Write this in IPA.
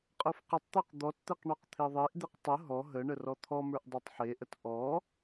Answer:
qʼ ə˞ f q ə tˤ t̪ ə˞ q d̪ ɔ t t̪ e q ɳ ɔ q t̪ʰ e ðˤ e ʔ d̪ e q tˤ ə ɦ ɔ ɦ ə ɳ ə r ɔ t̪ʰ ɔ m ə˞ ʔ dˤ e tˤ ħ e ʔ ə t ʔ ɔ

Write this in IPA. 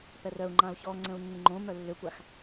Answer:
p ɛ r œ u̯ ŋ͡ǃ ã u̯ ç ɔ ŋ͡ǀ ə̃ u̯ nː ɪ ŋ͡ǃ õ m œ lː ʏ kʷ a x

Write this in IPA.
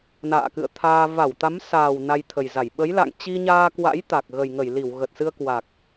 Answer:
n a̰ː˧˨ k ɨ̰˧˨ ə̯ t̪ʰ aː˧ v a˧˩ w t̪ a˨˦ m s aː˨˩ w n a˧ j t̪ʰ ə˨˩ j z a˧˩ j ɓ ə˨˦ j l a̰˧˨ ŋ t͡ɕ i˧ ɲ aː˧ k w a̰˧˥ j t̪ a˨˩ k̚ ɣ ə˨˩ j ŋ ə˧˩ j l i˧˩ w ɣ ə˨˩ t̚ s ɨ˧ ə̯ k w a˨˩ k̚

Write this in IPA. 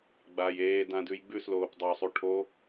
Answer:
ɡ͡b a j eː d ã d ʉ j ɡ͡b ʉ s l oː p dˤ o sˤ u ʈʰ o

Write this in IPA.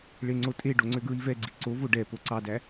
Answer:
ɭ e ŋ͡ǀ o tʼ e ɖ o ŋ͡ǀ ø ɡ ɹ i v ɛ ɡ͡ǀ i ǀ o v o ɖ ɛ p o ǀ ɑ d æ

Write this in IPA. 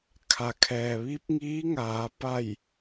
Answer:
kʰ a˩ kʰ ɛː˩ ʋ i˧˥ p̚ ŋ iː˧˥ ŋ aː˩˧ p a˧˩ j

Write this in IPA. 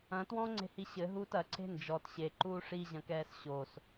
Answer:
ɐ̃ t w ɔ̃ ŋ͡ǀ e̤ h i ɕ ɘ ɦ uː t ɐ ǀʰ e̤ n d͡ʒ ɔ t ɕ e ǃ uː ʂ i ʑ ɐ̃ k ɛː s ɕ o s

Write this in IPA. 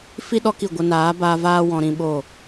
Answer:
f i˦ ɗ ɔ˦ k i˦˨ ɡʷ ə˧ n aː˨˦ b aː˧ v aː˦ w ɔ̃˧ ɾ ĩ˧ ɓ o˦˨

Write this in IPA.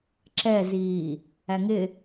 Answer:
ǁ ɛ z iː | æ ŋ ɪ

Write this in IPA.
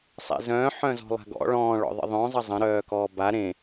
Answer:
sˤ ḛ z œ̃ː ħ œ̃ z ɔ̤ lˠ a̤ ɡ ɔ̰ ɭ ɔ̃ː ɭ ɔ̰ ðˤ ə̰ ðˤ œ̃ zˤ ə zˤ ə̃ ɾ œː k ɔː b a ɾ ẽ

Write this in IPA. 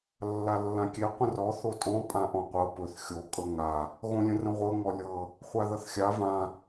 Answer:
lː a lː ã kʲ e qʷ ə̃ r ɔ θ o tʼ ɔ̃ pʼ ã ʔ ɔ̃ qʷ ɤ p ɵ θ xʲ o kʼ ɤ ŋ a | ɣ õ lʲ ə̃ r ə̃ ʁʷ ɤ ŋ ɔ lʲ ɤ | χʷ a ð ʌ θ xʲ a v ã

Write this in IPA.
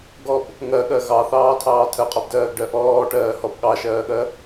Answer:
ɡ ɔ b | ŋ ɜ ɠ ɜ ɣ ɑ θ ɑː tʰ ɑː tʰ ɜ qʼ ɔ b d ɜː ɡ ɖ ɜ ʔ ɔː ʈ ɜː h ɔ b ɠ ɑ ʃ ɜː ɠ ɜ

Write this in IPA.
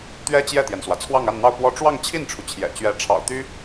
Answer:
t̪ ɥ ɛ˥ t͡ɕ j ɛ˥˩ t̪ j ɛ˩ n s w ä˩ t͡sʰ w ɑ˥˧ ŋ a˥˧ n n̪ ɑ˥˧ ʊ̯ p w ɔ˥˧ ʈ͡ʂ w ɑ˥˧ ŋ t͡ɕʰ i˥˩ n ʈ͡ʂʰ u˩ t͡ɕʰ j ɛ̰˨˩ t͡ɕ ɥ ɛ˧˥ ʈ͡ʂʰ ɑ̰˨˩ ʊ̯ t̪ y˥

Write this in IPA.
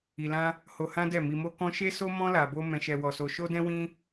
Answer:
i˧ l ã˦ | h o˧ h ã˦ d ɛ˦˨ m i˧ m o˦ k ɔ̃˦ ʃ e˦ s o˦ m ɔ̃˦ l a˧ b o˦ m ɛ̃˧ ʃ ɛ˧ w ɔ˧ s o˧ ʃ o˦ d ɛ̃˦ w ĩ˦

